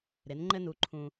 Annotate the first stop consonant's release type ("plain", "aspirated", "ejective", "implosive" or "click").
click